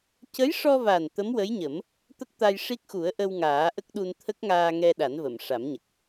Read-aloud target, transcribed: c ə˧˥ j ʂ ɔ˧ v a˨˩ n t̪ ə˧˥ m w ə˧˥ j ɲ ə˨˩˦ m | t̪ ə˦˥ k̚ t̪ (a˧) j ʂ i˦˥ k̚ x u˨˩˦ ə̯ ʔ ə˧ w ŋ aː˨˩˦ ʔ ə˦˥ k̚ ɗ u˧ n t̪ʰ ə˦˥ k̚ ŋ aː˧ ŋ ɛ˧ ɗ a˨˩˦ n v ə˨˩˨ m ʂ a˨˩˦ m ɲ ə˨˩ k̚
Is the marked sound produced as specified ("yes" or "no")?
yes